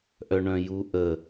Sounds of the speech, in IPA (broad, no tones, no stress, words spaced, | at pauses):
ʔœɳœ̃juʔə